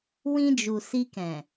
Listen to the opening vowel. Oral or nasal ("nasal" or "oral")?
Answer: nasal